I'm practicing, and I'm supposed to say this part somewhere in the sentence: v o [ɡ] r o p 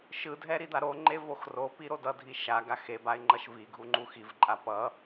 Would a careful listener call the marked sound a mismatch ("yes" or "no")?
yes